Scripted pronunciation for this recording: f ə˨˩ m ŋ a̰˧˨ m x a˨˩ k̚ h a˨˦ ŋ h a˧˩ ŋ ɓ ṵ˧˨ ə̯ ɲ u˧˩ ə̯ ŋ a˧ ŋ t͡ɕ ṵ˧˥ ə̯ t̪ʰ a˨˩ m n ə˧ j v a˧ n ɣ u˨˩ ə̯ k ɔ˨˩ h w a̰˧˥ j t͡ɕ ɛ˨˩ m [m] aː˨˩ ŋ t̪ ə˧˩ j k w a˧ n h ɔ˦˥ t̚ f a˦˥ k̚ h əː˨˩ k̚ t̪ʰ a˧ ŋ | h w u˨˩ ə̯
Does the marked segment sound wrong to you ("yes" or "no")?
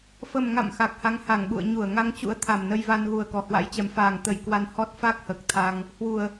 yes